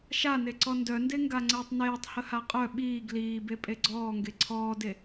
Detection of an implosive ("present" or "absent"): present